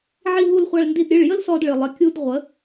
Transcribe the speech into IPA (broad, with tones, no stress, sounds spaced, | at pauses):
ʕ i˧ ɦ u˧ l χʷ a˧ ɭ n d i˧ d ɾʲ ɨ˩˧˩ ɭ j ə˥ l s ɔ˧ d ɭ ɨ˩ lˠ ə˩˧˩ kʲ u˧ d ʁʷ ə˩˧